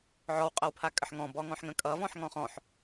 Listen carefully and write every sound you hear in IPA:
ʕ ɔ w qʼ ʌ w pʰ a kʼ ə ħ ŋ ɔ̃ b ɔ ŋ ɔ̃ ħ ŋ ə̃ kʼ ʌ v ɔ̃ ħ ŋ ɔ̃ χ ɔ̃ ħ

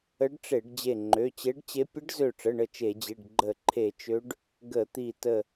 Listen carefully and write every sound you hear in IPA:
ə˧˥ ɖ ʈ͡ʂ e˧˩˧ ɖ d͡ʑ e˧˩ ŋ͡ǃ ø˩˧˩ t͡ɕ e˧˥ ɖ t͡ɕ e˧˥ pʲ ə˧˥ ɖ z ø˧˩ ʈ͡ʂ ə˩˧˩ ɳ ə˧˩ t͡ʃ e˧˩˧ d͡ʑ i˩˧˩ ɖ ɡ͡ǃ ə˧˩˧ ǃʰ e˧˩˧ t͡ʃ ø˧˥ ɖ | ɡ ə˧˩˧ t̪ i˧˩ t ə˧˩

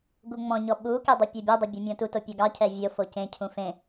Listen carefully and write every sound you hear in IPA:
ɡ u ŋ͡m ɔ̃ ɲ ɔ ɓ u k e dˤ e pʲ o bʲ ɛ dˤ ɛ bʲ e mʲ ɔ̃ t u t o pʲ ɔ ɡ ɑ cʰ ɛ vʲ o f o c ẽ cʰ ũ f ẽ

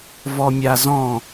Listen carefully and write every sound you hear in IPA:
v ɔ mʲ a z ɔ̃

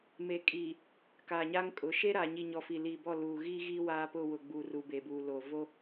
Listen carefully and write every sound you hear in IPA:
m e˨ kʼ iː˨ | k aː˨ ɲ aː˦ ŋ kʼ ʊ˨˦ ʃ e˦ ɾ aː˨ ɲ i˨ ɲ ɔ˨ f i˨ l iː˨ b ɔ˦˨ l uː˨ ɣ iː˦ ɣ iː˦ w aː˦ p ʊ˦˨ w ʊ˨ ɡ͡b u˨ r u˨ b e˨ b uː˨ l o˨ v o˦

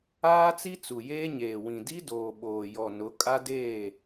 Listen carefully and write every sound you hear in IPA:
aː˦ t͡s i˦ t͡s u˨ j eː˦ ɲ eː˨ w ĩ˨ d i˦ d oː˨ ɓ oː˨ j ɔ˨ n ʊ˨˦ kʼ a˦ d eː˦˨

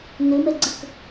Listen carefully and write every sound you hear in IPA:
n ɘ m ɛ ɡ͡ǀ ə k

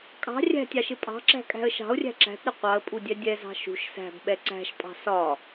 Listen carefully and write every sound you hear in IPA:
kʼ ɑ̤ rʲ æ̤ tʲ ɑ ʃ ɪ pʼ ɑ̤ ǁ æ̤ kʼ æ̤ ə̯ ʃ ɑ̤ ʊ̯ rʲ æ̤ ǁ æ̤ t ɾ ɪ qʷ ɑ ə̯ pʼ u dʲ ɛ dʲ ɛ z ɑ̤ ʃ ṳ ʃ s æ̤ b ɓ ɛ ǀ æ̤ ʃ pʼ ɑ̤ s ɒ

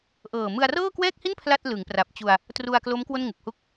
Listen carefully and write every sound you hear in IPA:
ʔ ɤː˨˩ m ɯ˧ a̯ r ɤː˥˩ k w ɛː˥˩ k̚ h i˥˩ n pʰ l a˥˩ t̚ l ɯ˩˦ ŋ p r a˨˩ p̚ t͡ɕ u˧ a̯ | t r u˧ a̯ k l o˦˥ m k w o˥˩ n ŋ u˨˩ k̚ h u˥˩ k̚

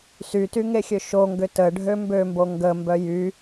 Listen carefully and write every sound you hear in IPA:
s y t y ŋ e xʲ ø ʃ o ŋ ɡ ʏ t ə ɖʱ ø m b ø m b o ŋ ɡ ə m b œ j y

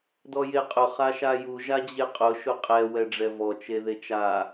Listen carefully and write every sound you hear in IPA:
d ɔ j e qʼ ʊ χ a ʃ a j u ʒ a d͡ʑ e qʼ ʊ ʃ ʊ qʼ ɛ w ɛ ɖ͡ʐ ɛ v ɔ t͡ʃ e ð e t͡ʃ a

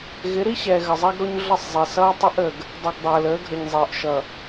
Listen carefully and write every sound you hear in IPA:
ɣ ɪ˨˦ ɾ i˦ ɕ ɛː˨ ɣ ə˨ zˤ ɛ˦ ɡ ɾ o˦ ɲ ɮ ʌ˦˨ sˤ zˤ ɛ˨ s ʌː˦ tˤ ɪ˦ ʔ ə˨ ɡ | dˤ ə˨ ɡ dˤ əː˨ l əː˨˦ ɡʱ ə˨ ɲ zˤ ɪː˨ ʔ ʃ ʌ˨

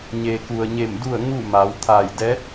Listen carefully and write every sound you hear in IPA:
ɲ eː˩ k u˩ ə̯ ɲ e˧˩ m d u˥˨ ə̯ ŋ u˥˨ m a˩˧ w t̪ʰ aː˧˩ j d ɛː˧˥ t̚

